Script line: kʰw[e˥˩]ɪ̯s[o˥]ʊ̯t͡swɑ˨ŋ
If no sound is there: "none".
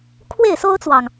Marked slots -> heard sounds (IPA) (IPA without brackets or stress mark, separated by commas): e˥˩, o˥